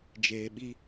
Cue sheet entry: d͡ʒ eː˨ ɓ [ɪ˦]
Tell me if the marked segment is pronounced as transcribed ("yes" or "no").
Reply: no